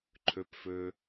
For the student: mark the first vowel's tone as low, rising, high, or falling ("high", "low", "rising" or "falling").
low